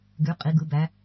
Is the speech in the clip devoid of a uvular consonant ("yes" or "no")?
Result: no